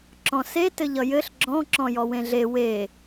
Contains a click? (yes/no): yes